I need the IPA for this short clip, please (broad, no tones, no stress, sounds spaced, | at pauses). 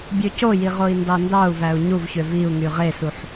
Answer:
bʲ ø c o j i ʁ o i̯ n d ɑ n d ɑ u̯ v æ u̯ ɲ u v ç ø v i u̯ ŋ y ʁ e s u ħ